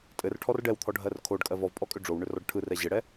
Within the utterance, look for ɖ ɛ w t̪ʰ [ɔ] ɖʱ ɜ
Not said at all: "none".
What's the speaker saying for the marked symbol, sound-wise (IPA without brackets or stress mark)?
ɔ